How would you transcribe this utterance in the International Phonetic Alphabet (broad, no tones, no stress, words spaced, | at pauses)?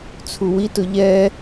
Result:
t͡sʰuwitʊ ʎɛ